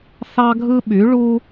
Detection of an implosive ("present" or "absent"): present